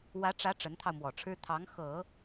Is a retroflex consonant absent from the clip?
no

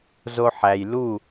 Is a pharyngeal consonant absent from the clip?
no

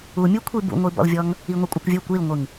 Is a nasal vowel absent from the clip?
yes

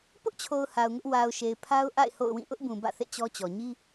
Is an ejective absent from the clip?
yes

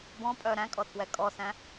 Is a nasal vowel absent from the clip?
no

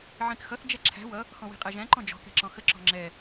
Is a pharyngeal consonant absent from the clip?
no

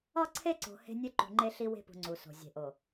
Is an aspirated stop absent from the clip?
no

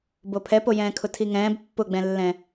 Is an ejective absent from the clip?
yes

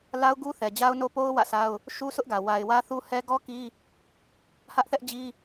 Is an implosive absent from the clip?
yes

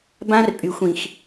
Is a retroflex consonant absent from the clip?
yes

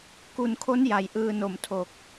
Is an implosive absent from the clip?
yes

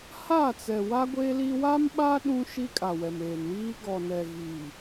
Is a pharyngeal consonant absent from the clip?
yes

